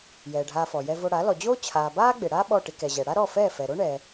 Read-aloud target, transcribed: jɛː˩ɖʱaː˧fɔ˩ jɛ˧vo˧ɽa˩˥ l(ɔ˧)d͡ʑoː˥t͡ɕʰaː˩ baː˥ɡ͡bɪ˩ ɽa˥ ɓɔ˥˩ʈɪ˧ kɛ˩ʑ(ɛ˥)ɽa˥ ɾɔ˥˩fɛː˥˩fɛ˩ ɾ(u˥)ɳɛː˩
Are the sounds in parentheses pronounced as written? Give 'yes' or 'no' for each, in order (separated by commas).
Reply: no, no, no